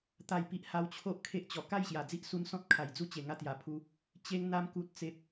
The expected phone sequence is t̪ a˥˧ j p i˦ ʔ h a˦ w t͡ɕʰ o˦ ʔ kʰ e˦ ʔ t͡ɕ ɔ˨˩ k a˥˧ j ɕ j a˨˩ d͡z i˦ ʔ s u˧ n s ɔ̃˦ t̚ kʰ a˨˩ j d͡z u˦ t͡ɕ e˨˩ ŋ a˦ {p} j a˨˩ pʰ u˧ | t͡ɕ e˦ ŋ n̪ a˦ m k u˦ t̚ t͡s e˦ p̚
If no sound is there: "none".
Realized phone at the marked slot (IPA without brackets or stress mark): t̪